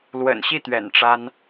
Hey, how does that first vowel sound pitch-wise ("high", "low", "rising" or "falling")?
low